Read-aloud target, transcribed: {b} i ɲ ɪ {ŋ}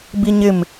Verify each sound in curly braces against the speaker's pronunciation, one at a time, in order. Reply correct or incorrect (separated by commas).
correct, incorrect